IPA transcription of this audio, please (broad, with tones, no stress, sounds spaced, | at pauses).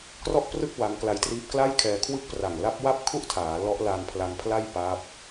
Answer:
k r ɔ˥˩ ʔ p r ɯ˥˩ k̚ w a˦˥ ŋ k l a˧ j t r iː˦˥ p̚ k l a˥˩ j kʰ ɛː˧ kʰ w ɯ˥˩ k̚ p r a˨˩ ŋ l a˦˥ p̚ w a˥˩ p̚ kʰ u˥˩ ʔ tʰ aː˩˦ l ɔ˦˥ ʔ l a˧ n pʰ l a˧ n pʰ l a˥˩ j p a˦˥ p̚